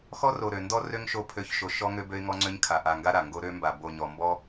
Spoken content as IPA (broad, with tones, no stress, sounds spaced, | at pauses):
x ɔ˦ r o˨ ɾ ø˨ n d ɔ˦ r ø˦ ŋ ʃ o˧ pʰ ø˨˦ ç ʃ o˨ ʃ ɔ˦ ŋ ø˦ b ø˦ ɪ̯ ŋ ɔ˦ ŋ͡ǀ ø˦ ɲ kʰ a˨ ʔ a˨ ŋ ɡ a˦ ɾ a˨ ŋ ɡ o˦ ɾ ø˧ m b a˨ b o˨ ɲ ɔ˨ m b ɔ˦